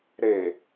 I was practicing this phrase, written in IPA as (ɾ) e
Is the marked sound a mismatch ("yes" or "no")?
no